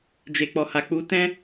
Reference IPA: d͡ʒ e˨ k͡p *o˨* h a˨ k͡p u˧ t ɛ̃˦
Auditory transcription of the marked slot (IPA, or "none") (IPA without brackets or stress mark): ɔ˨